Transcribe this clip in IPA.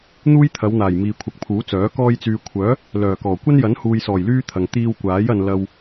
n̪ uː˥ j t̪ʰ ɐ˨˧ w n̪ aː˨˩ j m iː˨ kʷʰ ɐ˨ k̚ pʰ uː˨˥ t͡s œː˨˥ k ɔː˧ j t͡s yː˨ kʷʰ œː˨˥ | l œː˨˩ k ɔː˨˩ kʷ ɐ˥ n j ɐ˨˥ n h uː˨ j s ɔː˨˩ j l yː˥ t̪ʰ ɐ˨ ŋ t̪ iː˧ w kʷ aː˨˥ j ɐ˨ n l ɐ˨ w

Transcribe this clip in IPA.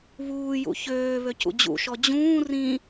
β uː j ṵ ç øː β ø c ṵ d͡ʑ ṵ ʃ ɔ d͡ʑ ũː r ĩ

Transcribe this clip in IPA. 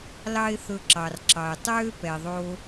l ɑ˦ ɪ̯ θ ɵ˧ ǁ ɑ˨ r ǁ ɑ˨ ɪ̯ tˤ øː˦ p ɛ˨ ðˤ oː˧

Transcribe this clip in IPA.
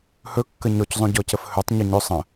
h ɵ kː ə ɲ ɔ c zˤ õ ɟ ɔ c ə f h ɵ tˤ ɲ o ɲ ɵ sˤ ə̃

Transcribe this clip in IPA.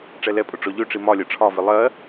ʈ͡ʂ ɛ l ɛ pʼ ʊ ʈ͡ʂ ɔ ʎ ø ʈ͡ʂ i m ɒ lʲ ɜ ʈ͡ʂʰ ɒ v i lˠ ɜ

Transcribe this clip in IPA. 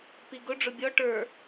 p i ɡ ʊ ɖ͡ʐ ʊ bʲ ɔ ʈ ə˞

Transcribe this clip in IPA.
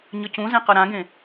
ɲ ʌ c ũ z ɛ̃ q ʌ ɾ ã ɡ ẽ

